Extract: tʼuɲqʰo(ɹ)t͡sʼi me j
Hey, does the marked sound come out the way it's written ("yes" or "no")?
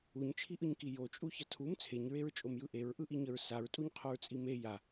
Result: yes